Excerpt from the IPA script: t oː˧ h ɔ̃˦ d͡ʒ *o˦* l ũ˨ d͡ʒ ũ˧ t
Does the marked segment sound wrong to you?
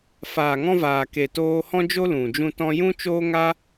no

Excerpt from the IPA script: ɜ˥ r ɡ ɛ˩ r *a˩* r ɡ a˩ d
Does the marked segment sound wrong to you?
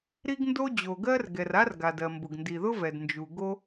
yes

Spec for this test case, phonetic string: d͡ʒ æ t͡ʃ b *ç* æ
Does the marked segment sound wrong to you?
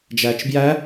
yes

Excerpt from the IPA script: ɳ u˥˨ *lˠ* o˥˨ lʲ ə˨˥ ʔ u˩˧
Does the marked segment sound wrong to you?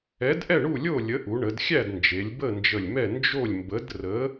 yes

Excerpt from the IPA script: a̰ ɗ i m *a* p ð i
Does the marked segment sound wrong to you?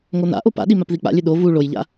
no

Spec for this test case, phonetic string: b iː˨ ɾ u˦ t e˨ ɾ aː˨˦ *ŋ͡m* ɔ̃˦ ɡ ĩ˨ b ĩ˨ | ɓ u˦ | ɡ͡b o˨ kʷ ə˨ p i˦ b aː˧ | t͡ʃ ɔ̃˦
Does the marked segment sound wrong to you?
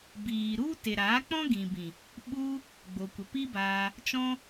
yes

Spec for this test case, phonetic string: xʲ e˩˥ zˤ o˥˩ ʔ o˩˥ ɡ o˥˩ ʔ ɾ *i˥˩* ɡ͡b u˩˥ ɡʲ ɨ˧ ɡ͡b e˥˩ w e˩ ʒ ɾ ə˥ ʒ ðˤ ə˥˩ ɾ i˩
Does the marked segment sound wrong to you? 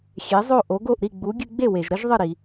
no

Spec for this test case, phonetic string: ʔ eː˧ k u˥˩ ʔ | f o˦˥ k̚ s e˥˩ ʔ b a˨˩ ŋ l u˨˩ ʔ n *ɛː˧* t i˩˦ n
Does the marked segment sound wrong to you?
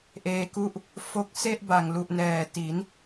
yes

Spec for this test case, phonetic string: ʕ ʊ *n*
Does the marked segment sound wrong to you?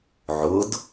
yes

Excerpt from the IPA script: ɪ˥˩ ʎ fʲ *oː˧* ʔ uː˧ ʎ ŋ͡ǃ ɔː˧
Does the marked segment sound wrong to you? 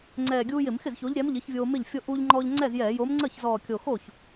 yes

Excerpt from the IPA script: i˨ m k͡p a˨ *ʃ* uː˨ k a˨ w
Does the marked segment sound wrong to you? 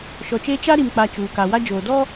yes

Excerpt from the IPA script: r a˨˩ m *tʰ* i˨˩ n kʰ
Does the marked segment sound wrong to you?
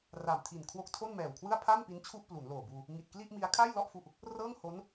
no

